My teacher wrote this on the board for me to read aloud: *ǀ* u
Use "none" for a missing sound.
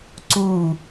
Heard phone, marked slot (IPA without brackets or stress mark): ǀ